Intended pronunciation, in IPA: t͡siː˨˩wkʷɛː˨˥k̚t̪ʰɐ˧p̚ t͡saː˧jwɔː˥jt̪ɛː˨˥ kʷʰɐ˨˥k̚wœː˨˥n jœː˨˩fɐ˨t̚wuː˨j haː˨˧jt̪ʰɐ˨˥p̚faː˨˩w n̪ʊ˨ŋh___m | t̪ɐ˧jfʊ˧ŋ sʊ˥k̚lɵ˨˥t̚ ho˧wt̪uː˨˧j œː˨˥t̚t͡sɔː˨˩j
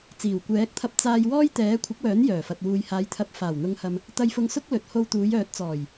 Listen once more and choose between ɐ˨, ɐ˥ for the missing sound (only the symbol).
ɐ˨